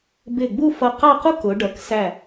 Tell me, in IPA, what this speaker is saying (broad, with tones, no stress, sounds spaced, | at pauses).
b ɪ˧˩ ɡ͡b u˥˧ f ʌ˧ q ɑ˥˧ q u˥ k ʊ˩˧ ɖ ʌ˩˧ k s æ˧˩